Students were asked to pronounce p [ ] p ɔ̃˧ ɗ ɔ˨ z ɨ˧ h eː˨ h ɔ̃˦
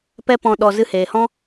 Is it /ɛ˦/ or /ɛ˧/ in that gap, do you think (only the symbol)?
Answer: ɛ˦